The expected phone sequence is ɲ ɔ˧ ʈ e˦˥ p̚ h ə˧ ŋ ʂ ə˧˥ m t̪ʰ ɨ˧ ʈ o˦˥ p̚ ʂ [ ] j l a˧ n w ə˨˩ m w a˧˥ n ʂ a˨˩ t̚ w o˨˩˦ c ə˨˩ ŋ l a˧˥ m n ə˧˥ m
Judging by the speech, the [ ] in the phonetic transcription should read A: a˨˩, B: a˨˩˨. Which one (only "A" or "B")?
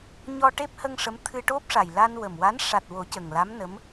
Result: A